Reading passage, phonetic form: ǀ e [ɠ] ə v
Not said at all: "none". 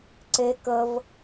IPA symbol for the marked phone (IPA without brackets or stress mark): k